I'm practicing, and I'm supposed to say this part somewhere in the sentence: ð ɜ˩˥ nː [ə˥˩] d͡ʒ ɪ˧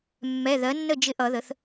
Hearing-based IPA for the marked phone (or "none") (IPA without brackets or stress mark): ə˥˩